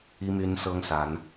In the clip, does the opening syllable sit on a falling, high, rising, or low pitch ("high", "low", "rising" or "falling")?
high